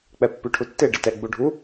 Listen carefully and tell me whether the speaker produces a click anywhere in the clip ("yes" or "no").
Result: no